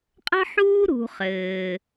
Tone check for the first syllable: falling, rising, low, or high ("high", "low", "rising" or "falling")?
high